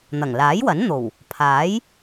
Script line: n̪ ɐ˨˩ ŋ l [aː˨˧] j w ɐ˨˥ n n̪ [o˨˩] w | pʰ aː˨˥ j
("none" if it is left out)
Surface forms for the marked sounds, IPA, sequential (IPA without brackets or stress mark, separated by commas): aː˨˥, o˨˩